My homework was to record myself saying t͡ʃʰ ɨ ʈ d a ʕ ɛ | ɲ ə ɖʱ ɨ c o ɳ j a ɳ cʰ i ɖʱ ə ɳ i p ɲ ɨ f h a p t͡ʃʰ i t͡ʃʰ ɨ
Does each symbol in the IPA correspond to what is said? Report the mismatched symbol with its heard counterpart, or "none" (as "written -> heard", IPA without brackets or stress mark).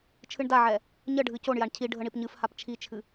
ʈ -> ɳ